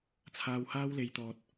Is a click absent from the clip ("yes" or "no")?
yes